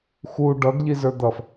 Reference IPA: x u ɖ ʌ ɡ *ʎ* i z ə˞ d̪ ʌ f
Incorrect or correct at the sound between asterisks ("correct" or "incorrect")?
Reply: correct